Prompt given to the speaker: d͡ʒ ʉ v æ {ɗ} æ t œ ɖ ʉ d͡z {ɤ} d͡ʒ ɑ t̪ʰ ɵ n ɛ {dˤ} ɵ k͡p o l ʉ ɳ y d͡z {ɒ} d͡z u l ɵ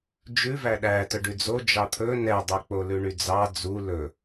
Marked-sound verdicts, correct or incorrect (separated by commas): correct, incorrect, correct, incorrect